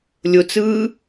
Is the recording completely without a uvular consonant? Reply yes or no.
yes